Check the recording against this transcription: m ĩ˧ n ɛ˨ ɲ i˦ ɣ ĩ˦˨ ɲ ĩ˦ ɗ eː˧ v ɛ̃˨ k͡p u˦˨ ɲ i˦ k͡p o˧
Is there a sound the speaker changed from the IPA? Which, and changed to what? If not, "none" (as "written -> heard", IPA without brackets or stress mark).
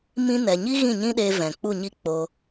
none